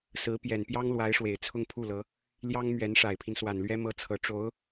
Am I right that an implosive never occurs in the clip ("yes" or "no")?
yes